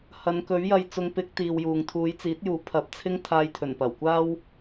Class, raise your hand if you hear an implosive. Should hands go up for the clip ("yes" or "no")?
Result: no